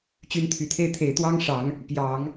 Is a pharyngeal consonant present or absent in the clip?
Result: absent